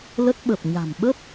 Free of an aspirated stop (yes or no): yes